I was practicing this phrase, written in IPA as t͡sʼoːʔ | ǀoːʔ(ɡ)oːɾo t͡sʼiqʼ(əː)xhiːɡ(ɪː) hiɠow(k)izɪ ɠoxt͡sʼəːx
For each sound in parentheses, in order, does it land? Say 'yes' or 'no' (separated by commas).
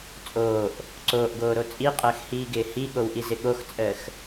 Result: yes, yes, yes, no